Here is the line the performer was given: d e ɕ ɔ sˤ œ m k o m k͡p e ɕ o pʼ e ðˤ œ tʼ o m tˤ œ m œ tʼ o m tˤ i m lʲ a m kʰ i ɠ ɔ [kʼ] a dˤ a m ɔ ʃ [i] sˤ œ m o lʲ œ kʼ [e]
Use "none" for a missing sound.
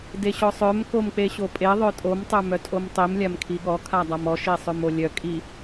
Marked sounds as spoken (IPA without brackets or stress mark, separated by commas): kʰ, i, i